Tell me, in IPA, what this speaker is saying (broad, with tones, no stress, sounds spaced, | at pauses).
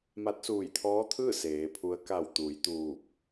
m a˧˥ t̚ s uː˧˩ j t̪ʰ ɔː˧˥ t̪ʰ ɯː˥˨ s eː˩˧ pʰ u˧˥ ə̯ k a˧˩ w t̪ uː˩˧ j t̪ uː˧˩ p̚